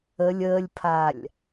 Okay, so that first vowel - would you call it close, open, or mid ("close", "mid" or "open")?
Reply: mid